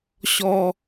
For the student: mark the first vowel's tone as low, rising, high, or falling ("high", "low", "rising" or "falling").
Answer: high